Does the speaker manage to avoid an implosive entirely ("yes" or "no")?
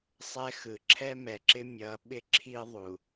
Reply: no